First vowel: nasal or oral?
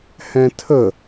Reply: nasal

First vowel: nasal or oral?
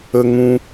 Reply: oral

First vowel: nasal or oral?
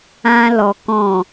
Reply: nasal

